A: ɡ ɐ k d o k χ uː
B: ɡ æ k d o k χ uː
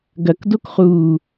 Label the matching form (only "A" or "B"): A